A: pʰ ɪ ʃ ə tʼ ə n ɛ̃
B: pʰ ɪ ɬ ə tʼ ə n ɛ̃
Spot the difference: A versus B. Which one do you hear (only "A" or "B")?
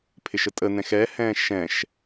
A